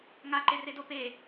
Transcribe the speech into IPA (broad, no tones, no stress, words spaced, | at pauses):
ŋaǃeredo pe